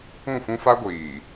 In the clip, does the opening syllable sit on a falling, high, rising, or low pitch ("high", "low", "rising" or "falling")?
falling